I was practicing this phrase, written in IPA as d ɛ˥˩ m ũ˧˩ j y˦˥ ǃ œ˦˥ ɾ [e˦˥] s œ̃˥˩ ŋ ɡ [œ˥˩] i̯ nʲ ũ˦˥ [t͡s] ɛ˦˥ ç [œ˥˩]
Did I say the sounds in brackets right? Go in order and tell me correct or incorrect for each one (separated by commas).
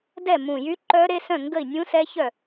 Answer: correct, incorrect, incorrect, correct